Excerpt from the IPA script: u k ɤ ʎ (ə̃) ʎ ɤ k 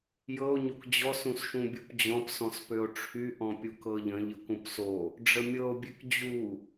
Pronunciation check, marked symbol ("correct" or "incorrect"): correct